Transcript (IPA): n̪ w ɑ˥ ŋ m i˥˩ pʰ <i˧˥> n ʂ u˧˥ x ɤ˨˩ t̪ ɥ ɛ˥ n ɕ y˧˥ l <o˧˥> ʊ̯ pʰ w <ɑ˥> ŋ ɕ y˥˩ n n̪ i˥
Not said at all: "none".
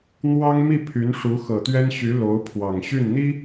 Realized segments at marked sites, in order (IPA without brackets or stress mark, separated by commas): y˧˥, o˧˥, ɑ˨˩